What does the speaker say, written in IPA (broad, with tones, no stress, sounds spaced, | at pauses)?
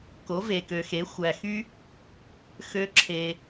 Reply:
k o˨˦ v e˨ k ø˨ x e˨˦ xʷ æ˨ x y˦ | x ø˦ ǁʰ e˧